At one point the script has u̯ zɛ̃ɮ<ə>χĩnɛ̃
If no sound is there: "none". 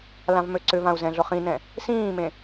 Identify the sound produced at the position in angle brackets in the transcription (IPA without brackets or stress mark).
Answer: ʊ